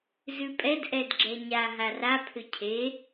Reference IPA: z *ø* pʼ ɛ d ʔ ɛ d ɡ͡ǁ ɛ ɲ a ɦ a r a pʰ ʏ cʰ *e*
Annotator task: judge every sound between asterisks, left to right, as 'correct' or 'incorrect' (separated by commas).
incorrect, correct